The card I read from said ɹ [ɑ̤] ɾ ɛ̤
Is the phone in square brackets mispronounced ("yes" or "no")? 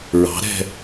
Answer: no